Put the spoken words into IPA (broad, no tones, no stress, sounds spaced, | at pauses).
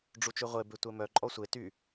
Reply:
ɖ͡ʐ u t͡ʃ y ʁʷ e b e tʷ ɛ m œ ǃʼ ɔ sʷ e t y